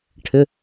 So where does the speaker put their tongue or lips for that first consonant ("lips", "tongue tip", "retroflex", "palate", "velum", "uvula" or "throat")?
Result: retroflex